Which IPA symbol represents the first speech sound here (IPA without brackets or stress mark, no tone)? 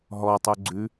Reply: ɦ